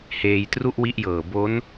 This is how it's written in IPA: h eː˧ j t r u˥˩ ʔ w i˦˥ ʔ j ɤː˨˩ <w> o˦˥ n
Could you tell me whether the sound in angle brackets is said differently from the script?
yes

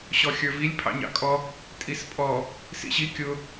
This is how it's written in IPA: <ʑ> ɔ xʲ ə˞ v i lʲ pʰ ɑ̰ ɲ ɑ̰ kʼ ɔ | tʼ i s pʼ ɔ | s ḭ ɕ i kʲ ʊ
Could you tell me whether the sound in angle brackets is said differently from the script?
yes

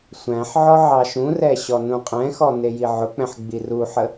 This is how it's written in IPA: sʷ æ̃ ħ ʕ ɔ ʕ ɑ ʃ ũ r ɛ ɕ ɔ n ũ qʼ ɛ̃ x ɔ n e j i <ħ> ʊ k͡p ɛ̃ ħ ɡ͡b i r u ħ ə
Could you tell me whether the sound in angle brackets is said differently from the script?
yes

